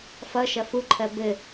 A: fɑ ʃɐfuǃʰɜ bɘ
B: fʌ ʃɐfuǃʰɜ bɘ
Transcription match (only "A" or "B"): B